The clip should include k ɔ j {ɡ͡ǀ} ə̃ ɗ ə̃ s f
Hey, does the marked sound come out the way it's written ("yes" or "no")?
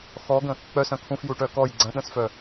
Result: yes